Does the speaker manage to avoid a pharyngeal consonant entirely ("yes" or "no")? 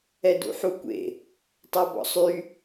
no